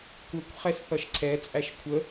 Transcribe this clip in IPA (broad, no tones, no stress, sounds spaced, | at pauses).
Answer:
kʷ ə kʷ χ ɛ s θ ʌ ʃ ǀʰ ɛ t͡sʼ æ ʃ kʷʰ ə